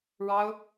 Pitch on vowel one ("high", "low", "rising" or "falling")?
high